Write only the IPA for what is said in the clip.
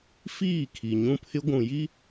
fiː˦˨ kʰi˨ɲũ˦pʰɪ˦ ɡʷũ˨ji˦

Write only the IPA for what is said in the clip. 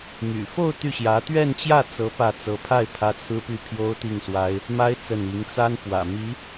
my̰˨˩fo˥˧ʊ̯ t̪y˥˩ɕjä˧˥ t̪ɥɛ˥˧nt͡ɕjä˥˩t͡sɤ˧˥ pä˥˩ t͡sɤ˧˥pʰa˥˩ɪ̯ pʰä˥t͡sʰɹ̩˥ py˥˩pʰjo˥ʊ̯t̪i˥˩ŋswa˥ɪ̯ | ma˥ɪ̯ t͡sə˥˩n i˧˥ŋt͡sa˥n pwä̰˨˩mi˧˥

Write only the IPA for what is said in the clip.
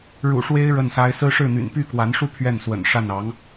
ɻṵ˨˩ʂwe˥ɪ̯ ɻə˥˩nsa˥ɪ̯ sɹ̩˥ʂɻ̩˥˩n̪y̰˨˩n py˥˩kwa˧˥nʂu˥˧ pʰɥɛ˥˩nswə̰˨˩nʂa˥˩n ɑ˧˥ŋ

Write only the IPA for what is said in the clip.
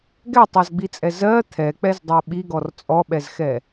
ɡɛtˤɜzɡ͡bit͡sʼɛ zɜ t̪ʰɛk͡pɛzdˤɜ ɓiɡɔr t͡sʼɔɓɛzxɛ

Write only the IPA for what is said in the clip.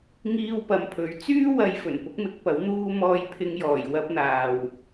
ŋiː˧wpɐ˨mpʰɵ˨˥ɥ t͡syː˥wɐ˨˧j fɵ˨˩npʊ˥k̚mɪ˨˥k̚pɐ˨˥w n̪uː˧ mɔː˧jpʰɪ˧ŋjɔː˨˩j wɐ˧p̚n̪aː˨w

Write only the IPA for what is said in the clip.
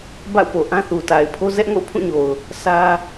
ba̰˦˨ʊ̯po˨ʔã˦θu˨ ta˨ɪ̯pʰo˦ zɛ˦ʔ ŋo̰˦˨ʊ̯pʰũ˦˨ɲo˨ʊ̯ | sä˦

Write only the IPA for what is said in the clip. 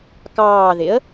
kɑːðɪə̯

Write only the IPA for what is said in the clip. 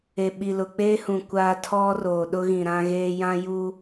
e˨ɓi˨lʊ˨ k͡peː˦hũ˨ kʷaː˦ tʰɔ˦ roː˨ɗʊ˦ ɣĩ˨ɾã˦ɣeː˦ jã˦juː˦

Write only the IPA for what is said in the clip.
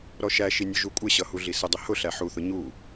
ɾɔʃæʃi nʲʊʒukʷʼɪɕʌ huɮisədˤə hʊɬæ ħuθʊ ɲu

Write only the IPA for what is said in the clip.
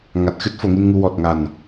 ŋa˨˩t̚xɨ˦˥t̚ fo˨˩˨ŋi˧nŋu˧ wɔ˨˩t̚ŋa˨˩n

